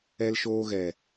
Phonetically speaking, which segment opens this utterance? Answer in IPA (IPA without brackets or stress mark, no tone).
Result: ɛ